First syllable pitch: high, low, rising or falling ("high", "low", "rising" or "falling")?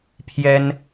high